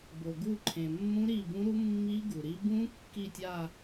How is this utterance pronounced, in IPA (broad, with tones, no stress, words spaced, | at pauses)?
bo˩ɡu˦˨ǃʰẽ˩ mːũ˦˥ɾi˦˨bũ˦˥ɾu˦˥ mːi˦˥ ɡu˩ɾi˦˥ bũ˦˥ kːi˦˨tʲa˦˨